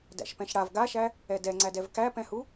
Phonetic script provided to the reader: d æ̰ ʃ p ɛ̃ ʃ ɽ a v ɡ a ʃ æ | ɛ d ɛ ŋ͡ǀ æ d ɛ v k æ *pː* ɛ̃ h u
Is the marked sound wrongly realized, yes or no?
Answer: yes